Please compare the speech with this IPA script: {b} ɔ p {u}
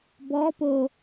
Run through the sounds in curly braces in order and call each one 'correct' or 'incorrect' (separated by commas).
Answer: correct, incorrect